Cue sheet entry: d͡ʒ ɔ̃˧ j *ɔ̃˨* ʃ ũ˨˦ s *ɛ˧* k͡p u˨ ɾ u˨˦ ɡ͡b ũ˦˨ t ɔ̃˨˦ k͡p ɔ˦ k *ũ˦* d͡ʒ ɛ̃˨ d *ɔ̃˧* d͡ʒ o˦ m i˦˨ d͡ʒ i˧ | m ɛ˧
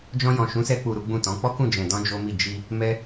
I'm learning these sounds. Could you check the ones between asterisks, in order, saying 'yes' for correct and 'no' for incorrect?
yes, yes, no, yes

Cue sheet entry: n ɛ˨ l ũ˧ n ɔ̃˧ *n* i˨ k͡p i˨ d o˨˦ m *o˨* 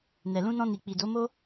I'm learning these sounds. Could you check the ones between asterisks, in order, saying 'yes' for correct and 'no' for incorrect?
yes, no

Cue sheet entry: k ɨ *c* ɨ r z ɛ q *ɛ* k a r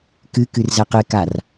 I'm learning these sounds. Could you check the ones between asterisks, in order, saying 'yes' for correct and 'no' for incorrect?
no, no

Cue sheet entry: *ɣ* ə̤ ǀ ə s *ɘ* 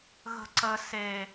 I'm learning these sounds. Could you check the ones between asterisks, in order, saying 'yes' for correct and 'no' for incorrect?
yes, no

